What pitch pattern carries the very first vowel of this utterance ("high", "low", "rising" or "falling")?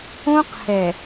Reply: high